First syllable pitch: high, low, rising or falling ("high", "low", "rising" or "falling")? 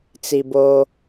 low